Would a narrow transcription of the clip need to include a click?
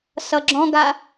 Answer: yes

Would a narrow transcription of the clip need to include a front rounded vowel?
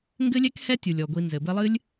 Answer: no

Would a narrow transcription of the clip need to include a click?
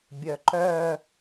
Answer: yes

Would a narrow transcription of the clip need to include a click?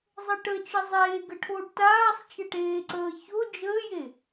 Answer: yes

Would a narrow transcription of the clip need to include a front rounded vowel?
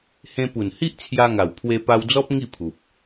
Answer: no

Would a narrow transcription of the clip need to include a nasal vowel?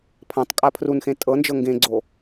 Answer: yes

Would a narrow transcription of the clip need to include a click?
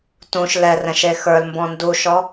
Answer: no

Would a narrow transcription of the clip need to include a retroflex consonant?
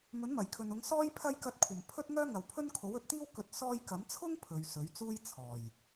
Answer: no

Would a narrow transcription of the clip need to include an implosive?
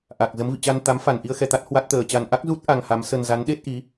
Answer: yes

